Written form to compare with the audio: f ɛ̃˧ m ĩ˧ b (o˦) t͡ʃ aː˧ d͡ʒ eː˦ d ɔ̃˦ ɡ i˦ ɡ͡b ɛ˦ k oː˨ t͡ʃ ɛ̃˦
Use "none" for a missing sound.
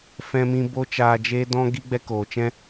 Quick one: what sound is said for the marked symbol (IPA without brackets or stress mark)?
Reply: o˦